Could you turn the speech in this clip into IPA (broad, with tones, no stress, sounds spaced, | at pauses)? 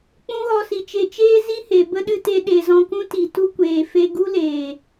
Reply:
k͡p ũ˦ ɣ ɔ˧ s i˨ t͡ʃ e˧ t͡ʃ eː˧ z i˦ h e˨ b ə˦ ɗ ɨ˧ t e˧ ɗ e˨ z ɔ̃˧ k ũ˦ t i˨ t u˧ kʷ eː˨ f e˧ ɡ u˦ l eː˨